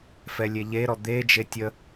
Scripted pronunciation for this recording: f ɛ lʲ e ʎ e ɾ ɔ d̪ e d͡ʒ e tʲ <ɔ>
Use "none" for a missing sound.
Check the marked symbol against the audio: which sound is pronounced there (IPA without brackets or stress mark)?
ə